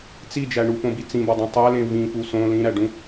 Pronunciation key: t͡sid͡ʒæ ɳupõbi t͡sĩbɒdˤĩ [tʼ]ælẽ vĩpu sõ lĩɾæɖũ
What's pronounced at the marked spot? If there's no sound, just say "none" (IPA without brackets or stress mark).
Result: tˤ